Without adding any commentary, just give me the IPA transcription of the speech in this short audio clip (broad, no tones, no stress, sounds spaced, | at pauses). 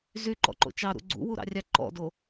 z y ǃ ɔ̰ ǃ o̰ t͡ʃ ɑ ɾ ṵ ɡ͡ǀ ṵ w u ɾ ɑ̰ rʲ ɑ ǃ ɔ̰ d o